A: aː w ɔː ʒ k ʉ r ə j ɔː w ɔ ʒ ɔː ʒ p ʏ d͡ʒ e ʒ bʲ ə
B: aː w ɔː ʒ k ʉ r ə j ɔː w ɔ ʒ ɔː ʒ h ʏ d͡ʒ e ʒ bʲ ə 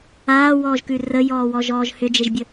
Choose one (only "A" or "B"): B